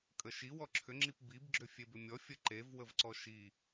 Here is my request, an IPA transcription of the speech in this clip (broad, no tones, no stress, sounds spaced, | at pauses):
kʼ ə ʃ i w ɔ ǁʰ ʏ ŋ͡ǁ i p b i b ɡ͡ǁ ʏ fʲ e b ʏ mʲ ɔ fʲ ə ǃ e v w ə v ǀ ɔ ʃ i